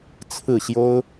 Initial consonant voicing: voiceless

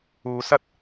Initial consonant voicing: voiceless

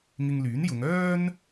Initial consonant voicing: voiced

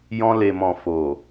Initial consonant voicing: voiced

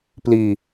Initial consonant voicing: voiceless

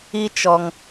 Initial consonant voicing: voiceless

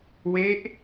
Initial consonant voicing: voiced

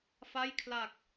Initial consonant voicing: voiceless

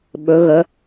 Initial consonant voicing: voiced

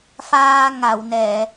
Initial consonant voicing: voiceless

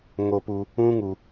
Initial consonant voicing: voiced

